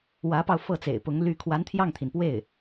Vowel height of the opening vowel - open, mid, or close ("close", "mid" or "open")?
open